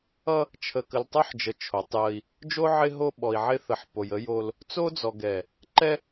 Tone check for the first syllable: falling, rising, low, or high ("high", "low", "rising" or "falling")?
high